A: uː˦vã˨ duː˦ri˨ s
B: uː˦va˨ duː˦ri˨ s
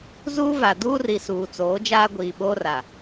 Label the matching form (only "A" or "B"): B